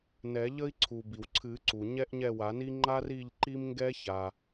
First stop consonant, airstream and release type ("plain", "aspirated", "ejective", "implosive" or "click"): click